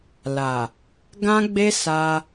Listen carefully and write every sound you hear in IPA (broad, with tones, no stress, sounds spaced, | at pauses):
l a˨ | ɡ ã˦ ɡ͡b e˦ s a˧